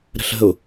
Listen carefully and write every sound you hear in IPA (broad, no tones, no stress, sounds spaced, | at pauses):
ɾ ə̤ ɬ ə̤ ʊ̯